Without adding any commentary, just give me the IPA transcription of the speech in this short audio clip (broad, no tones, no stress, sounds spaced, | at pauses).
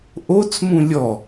ʔ o t͡s m ũ lʲ ɔ